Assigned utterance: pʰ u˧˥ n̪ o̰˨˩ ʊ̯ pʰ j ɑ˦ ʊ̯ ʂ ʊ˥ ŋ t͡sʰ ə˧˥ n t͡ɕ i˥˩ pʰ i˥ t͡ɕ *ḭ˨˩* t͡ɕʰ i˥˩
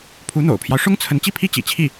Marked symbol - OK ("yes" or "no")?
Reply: yes